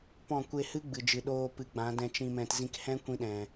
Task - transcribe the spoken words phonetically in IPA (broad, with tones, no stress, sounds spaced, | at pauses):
p ɔ̃˦˨ kʷ e˧ h ɨ˦ ɡ͡b ɨ˨ d͡ʒ ɨ˨ ɗ oː˧ p ɨ˨˦ ɡ͡b ã˨˦ d ɛ̃˧ t͡ʃ ĩ˧ m ɛ̃˧ t z ĩ˧ k h ɛ̃˦ kʷ ĩ˧ ɗ ɛ̃˨